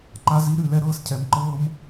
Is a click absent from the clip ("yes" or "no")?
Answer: no